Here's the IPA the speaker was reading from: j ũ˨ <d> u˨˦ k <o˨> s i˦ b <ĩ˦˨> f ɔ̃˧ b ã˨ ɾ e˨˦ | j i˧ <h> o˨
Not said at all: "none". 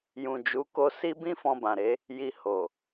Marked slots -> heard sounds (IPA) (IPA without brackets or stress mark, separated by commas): d͡ʒ, o˧, ĩ˦, h